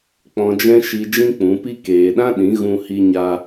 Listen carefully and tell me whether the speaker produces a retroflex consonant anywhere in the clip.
no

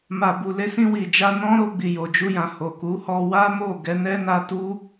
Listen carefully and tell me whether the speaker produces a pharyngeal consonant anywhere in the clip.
no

